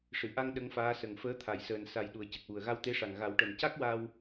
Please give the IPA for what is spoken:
ʂ ɨ˨˩˨ ʔ a˧ ŋ ɗ ə˧˥ ŋ f aː˧˥ s ə˨˩ ŋ f əː˧˥ t̪ʰ a˨˩˨ j s əː˨˩ n s a˨˩ j ɗ u˨˩ ə̯ c ə˨˩ k̚ w u˨˩ ə̯ ɣ a˧ w t̪ e˧˥ ʂ a˨˩ ŋ ɣ a˨˩˦ w ʈ ə˨˩ m c a˦˥ k̚ w a˧ w

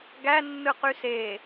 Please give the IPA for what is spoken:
ɡ æ nː ɯ q y s e

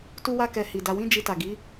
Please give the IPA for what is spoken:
t u˧ w a˧ k ɛ˨ h i˨ d a˧ w ĩ˦ d͡ʒ i˧ t a˨ ɡ i˨˦

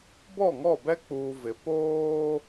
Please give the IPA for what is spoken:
b ɔ˦˨ ŋ ɔ˦˨ b ɛ˦ k͡p uː˨ v ɪ˨ p oː˦

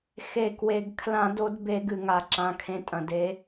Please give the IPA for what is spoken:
x e˩ k w e˩ ɡ kʰ l ã˧˩˧ d o˨˦ d b e˧˩˧ ɡ ɨ˩ ŋ a˩ ǁ ã˩˧˩ kʰ ẽ˨˦ tʼ ɐ̃˩ d e˨˦

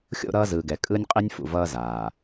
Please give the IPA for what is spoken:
xʲ o̰˦˨ ɾ ʌː˦ z ɯː˨ ɡ ɛ˨ kʼ ɯ˦ nʲ qʼ i˦ nʲ f ṵ˨ v ʌː˦ z aː˨

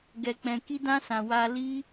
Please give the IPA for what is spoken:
ɡ ɛ˧ k͡p ɛ̃˧ k i˦ d ã˦ s ã˧ w a˧ l i˦

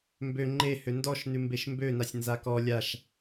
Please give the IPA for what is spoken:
m b ø ŋ͡ǃ e h ø n d ɔ ʃ n ʉ m b e ʃ m b ø n a sʲ n z a k ɔ lʲ a ʃ

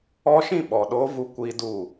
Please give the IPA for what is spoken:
ɔ˦ ʃ ĩ˦˨ ɓ ɔ˨ ɗ oː˦ v u˦ kʷ iː˦ d u˦˨

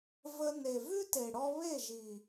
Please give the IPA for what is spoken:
v ə˧ n e˨ v ʉ˦ t e˨ ɽ ɔ˧ β e˦˨ ʒ i˨

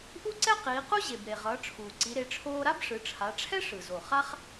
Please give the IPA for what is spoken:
ʔ u˥ ǀ ɛ˥ q iː˩˧ q u˥ ʑ e˩ b ɾ e˩ ʁ ʌː˩˧ ʈ͡ʂʰ uː˩ ǀ i˩˧ ɾ e˩˧ ʈ͡ʂʰ oː˧ ɾ a˥ b ʂ ɯ˩˧ ʈ͡ʂʰ a˩˧ ʈ͡ʂʰ ɛ˥ ʂ ɯ˩ z o˩ χ a˥ χ

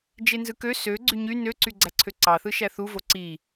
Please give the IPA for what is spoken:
d͡ʒ e n z ɯ k ø s ø ɡ͡ǀ y ɲ y n ø ǀ y ɡ͡ǀ æ ǀʰ ø ǀ ɑ θ ɯ ʃ æ θ u v o ǀ i

